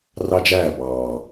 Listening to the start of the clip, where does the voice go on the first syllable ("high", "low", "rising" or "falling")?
high